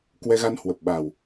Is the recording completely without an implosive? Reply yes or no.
no